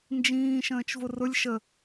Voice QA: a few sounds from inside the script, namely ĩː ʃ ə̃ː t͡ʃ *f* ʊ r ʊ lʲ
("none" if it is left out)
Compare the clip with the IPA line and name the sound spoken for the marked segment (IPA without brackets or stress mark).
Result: v